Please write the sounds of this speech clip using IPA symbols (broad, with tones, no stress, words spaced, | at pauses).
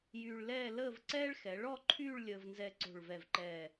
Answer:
jyː˧ɭlɛː˥˧ ləː˥˧vǀɛː˥ɭ xɛ˩˧ɭɔ˥˧ǃʰyː˥˧ɭ lʲəː˧vnzɛ˧ǀo̤˧˩ɭvɛ˧˩v ǃɛː˧˩